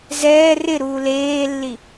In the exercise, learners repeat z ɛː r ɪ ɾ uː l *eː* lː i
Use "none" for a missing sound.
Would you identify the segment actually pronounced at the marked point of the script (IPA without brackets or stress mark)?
eː